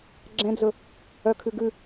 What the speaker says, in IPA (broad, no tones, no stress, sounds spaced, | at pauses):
ɡ͡ǁ ɛ̃ d͡z ɵ | œ kʰ ʉ ɡ ʉ